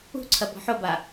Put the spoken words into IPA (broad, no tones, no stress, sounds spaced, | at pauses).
ṳ ǀʰ ɐ b ɔ̤ ħ o b a